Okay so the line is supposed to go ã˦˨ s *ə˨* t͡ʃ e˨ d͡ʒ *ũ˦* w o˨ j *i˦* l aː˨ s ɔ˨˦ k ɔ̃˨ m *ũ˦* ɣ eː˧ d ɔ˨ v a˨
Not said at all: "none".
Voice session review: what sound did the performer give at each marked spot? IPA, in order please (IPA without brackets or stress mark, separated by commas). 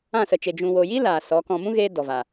ə˨, ũ˨, i˦, ũ˦